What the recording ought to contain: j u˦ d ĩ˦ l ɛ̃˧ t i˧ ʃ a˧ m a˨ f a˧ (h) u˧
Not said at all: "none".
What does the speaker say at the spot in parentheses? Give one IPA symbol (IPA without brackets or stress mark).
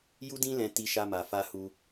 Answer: h